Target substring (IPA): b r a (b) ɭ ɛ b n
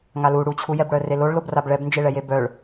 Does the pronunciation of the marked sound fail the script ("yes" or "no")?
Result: no